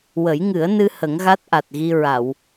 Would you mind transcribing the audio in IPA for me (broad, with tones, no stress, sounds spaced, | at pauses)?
w ə˨˩˦ j ŋ ɨ˨˩˦ ə̯ n ɨ˧ h ə˨˩˦ ŋ ɣ a˦˥ t̚ ʔ a˨˩ t̚ ɣ i˧ ɹ a˨˩˨ w